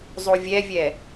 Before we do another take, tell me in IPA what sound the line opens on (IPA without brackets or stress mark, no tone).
zˤ